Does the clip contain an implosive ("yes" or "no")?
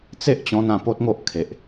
no